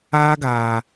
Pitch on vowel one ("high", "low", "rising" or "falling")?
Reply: high